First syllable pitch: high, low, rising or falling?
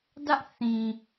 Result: high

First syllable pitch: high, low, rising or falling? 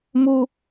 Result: high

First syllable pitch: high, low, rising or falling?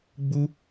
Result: high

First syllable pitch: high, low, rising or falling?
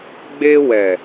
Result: high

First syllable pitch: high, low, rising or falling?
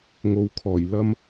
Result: low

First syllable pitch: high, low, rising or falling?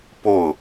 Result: falling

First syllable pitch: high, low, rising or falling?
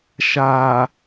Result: low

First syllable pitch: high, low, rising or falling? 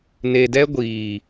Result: low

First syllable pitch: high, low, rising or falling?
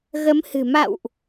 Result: rising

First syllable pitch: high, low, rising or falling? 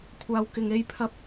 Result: low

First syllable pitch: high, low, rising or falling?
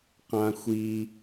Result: high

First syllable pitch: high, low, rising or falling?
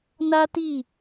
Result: high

